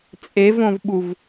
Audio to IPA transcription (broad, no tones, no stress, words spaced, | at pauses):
t͡sʼevõvɓuv